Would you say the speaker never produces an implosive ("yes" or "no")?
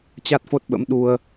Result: no